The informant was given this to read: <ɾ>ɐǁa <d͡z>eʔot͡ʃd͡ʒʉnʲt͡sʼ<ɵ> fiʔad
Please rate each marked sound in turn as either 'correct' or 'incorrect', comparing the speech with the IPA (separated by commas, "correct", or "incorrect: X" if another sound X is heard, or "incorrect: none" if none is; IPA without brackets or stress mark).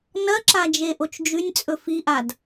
incorrect: n, incorrect: d͡ʒ, correct